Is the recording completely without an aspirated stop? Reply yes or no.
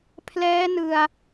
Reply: no